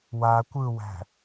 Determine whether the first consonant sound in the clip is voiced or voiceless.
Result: voiced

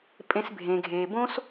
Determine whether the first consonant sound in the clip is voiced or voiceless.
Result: voiceless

